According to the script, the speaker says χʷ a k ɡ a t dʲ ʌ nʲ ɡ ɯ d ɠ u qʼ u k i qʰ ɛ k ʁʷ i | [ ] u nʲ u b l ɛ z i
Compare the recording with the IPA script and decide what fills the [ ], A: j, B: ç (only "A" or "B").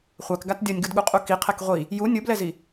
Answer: A